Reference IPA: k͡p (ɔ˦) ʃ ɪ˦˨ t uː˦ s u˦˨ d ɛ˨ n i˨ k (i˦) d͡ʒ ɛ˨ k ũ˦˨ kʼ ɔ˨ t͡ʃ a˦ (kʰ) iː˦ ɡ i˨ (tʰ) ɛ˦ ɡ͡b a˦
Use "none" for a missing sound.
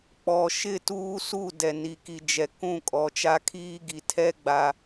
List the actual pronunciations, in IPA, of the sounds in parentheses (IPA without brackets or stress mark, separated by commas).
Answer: ɔ˨, i˨, kʰ, tʰ